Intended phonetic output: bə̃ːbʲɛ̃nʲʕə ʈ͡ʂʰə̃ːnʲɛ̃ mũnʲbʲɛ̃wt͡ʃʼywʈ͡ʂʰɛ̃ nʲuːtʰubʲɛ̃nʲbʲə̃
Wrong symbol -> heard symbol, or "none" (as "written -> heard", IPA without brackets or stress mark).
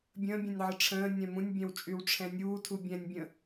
b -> bʲ